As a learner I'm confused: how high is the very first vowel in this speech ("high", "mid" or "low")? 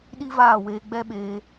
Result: high